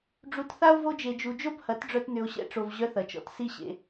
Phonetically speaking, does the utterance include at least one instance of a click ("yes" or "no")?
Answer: no